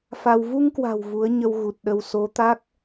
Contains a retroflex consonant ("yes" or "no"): no